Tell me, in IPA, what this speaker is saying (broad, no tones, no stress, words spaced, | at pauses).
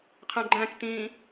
qʰæ̃ɡ͡ǃæ̃ktĩː